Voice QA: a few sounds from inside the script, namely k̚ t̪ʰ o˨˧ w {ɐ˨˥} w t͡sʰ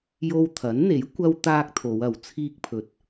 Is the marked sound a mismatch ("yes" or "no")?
no